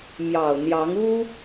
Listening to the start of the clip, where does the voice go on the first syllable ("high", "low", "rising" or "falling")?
low